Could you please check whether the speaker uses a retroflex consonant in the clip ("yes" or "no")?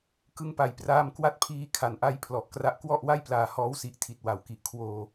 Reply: no